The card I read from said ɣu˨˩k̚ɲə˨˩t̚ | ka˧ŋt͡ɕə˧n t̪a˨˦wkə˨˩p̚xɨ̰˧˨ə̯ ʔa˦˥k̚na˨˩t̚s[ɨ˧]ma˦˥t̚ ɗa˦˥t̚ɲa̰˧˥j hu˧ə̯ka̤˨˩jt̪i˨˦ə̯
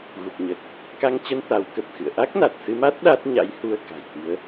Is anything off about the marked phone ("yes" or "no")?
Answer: no